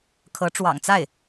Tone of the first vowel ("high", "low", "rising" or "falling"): rising